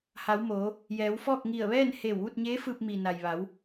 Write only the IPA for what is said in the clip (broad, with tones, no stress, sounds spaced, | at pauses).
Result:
h a˩˧ w m oː˩˧ | j ɛː˩˧ w f ɔː˥˨ k̚ ŋ i˧˩ ə̯ ʋ ɛː˥˨ n h eː˧˩ w ʋ u˥˨ t̚ ɲ eː˧˥ f ɯː˧ p̚ m i˩ n a˩ j ʋ a˩˧ w